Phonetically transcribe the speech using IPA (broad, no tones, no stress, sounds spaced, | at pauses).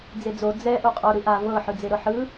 d͡z e d͡z o d͡z ɛ ʔ u qʼ o ɾ ɯ ʔ a v ɤ ħ ɯ d͡z e ɾ ɤ ħ ɯ